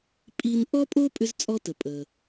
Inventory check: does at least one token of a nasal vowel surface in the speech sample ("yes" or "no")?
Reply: no